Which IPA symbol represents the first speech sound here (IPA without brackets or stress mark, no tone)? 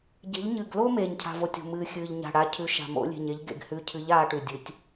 ɟ